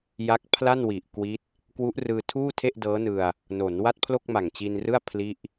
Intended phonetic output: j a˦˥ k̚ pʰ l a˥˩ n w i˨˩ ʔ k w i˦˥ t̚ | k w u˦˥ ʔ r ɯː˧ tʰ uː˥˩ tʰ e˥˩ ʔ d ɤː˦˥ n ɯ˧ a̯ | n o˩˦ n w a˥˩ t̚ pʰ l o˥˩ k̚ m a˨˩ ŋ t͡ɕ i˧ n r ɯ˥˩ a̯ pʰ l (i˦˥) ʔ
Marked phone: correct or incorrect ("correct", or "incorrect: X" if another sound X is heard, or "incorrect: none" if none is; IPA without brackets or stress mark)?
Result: incorrect: i˥˩